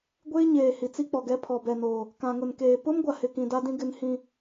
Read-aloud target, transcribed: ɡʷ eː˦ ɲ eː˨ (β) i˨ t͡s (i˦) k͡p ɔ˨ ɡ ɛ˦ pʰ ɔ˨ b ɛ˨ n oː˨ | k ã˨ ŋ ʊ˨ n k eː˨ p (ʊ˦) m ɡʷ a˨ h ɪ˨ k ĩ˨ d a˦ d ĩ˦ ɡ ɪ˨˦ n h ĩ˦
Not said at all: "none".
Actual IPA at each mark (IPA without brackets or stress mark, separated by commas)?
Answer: h, i˦, ʊ˦